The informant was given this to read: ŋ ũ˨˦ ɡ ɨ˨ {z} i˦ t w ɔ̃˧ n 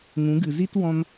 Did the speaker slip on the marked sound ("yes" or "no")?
no